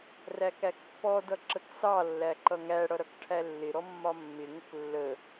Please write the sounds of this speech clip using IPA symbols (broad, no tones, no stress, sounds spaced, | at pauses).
r æ k æ k pː ɔ d ʌ ǁ ə k s ɑ lː æ ǃ ʌ ŋ æ ɽ ʌ ɾ ʌ k ʈʰ æ lː ɪ ɾ ɔ mː ɒ mː ɪ ŋ ə k lː ə